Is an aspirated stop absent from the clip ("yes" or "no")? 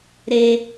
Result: yes